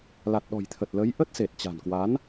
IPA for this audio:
la˨˩t̚ɗɔ̤˨˩jt̪ʰə˨˩t̚ lə˨˦j ʔə˦˥t̚se˨˩t̚t͡ɕa̤˨˩nkwa˨˦n

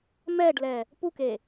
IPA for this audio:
mɛːɖlɛː | pukeː

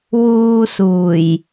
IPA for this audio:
wuː˧suː˨˩j

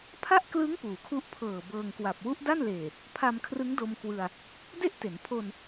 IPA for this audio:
pʰa˥˩ʔklɯ˦˥ŋ puː˩˦kʰu˦˥ʔpʰɤː˨˩ bɤː˧ŋkwa˨˩p̚ wu˦˥ʔda˥˩nleː˨˩ | pʰa˧mkʰrɯ˦˥ŋdo˧m kwɯ˧a̯ | de˥˩ʔte˩˦n pʰo˧n

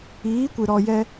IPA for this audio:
iː˨˦kʷɨ˨ɾɔ˧ jɛ˧

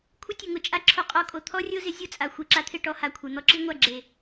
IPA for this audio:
kʷʰɪ˦ tʲʊ˨ŋʊ˨˦ t͡ʃʼa˦ǁʰo˧qʼɔ˧kʼo˨ t̪ʰɔ˦rʲo˦zɪ˨˦ zʲo˦t͡sʼa˨ xʷi˨ǁa˧t̪ʰɪ˦˨ ʈɔ˦ha˨kʷʰe˨ n̪ɔ˧ǁi˦ŋʷa˦˨ ɡ͡ǁe˨

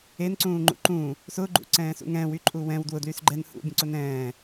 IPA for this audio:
enǀũːŋ͡ǃṵ ǃũː | sʊɡ͡ǃṵǀɛ̃ːsṵŋ ɛ̃ːwyǃʼu wɛ̃w dwʊdlys ɡ͡ǃɛn hṵbʲõǀʊn ɛ̃ː

